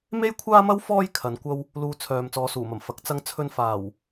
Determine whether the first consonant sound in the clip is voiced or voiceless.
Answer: voiced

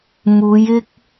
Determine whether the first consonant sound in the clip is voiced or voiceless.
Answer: voiced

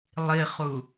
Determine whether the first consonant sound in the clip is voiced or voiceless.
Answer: voiced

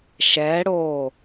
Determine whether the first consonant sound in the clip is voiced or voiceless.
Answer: voiceless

